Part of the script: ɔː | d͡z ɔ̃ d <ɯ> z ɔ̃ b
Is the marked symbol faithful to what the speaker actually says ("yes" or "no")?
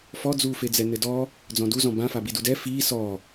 no